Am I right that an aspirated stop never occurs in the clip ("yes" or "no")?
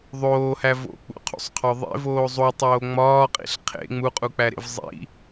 no